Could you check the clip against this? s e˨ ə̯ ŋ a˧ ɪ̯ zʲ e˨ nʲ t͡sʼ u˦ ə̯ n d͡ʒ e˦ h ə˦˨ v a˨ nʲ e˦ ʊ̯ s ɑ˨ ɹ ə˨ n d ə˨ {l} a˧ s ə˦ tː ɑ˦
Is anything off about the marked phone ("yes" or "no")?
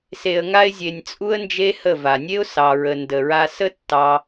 yes